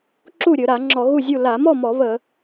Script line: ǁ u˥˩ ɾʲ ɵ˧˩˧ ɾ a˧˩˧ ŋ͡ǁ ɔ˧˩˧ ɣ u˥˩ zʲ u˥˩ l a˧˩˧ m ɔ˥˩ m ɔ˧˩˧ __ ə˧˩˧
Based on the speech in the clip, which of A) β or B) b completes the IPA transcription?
A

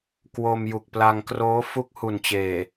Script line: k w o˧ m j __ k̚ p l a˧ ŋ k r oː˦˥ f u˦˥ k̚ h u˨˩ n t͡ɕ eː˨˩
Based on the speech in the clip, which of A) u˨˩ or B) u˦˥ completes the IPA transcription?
A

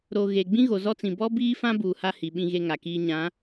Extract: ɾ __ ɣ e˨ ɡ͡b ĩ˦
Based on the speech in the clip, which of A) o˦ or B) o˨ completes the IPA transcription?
B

